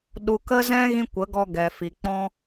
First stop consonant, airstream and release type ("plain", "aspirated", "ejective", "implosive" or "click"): implosive